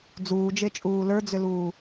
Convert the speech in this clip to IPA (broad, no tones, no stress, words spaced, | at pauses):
d͡zuːd͡ʒet͡ʃʼuː lə˞d͡zʏluː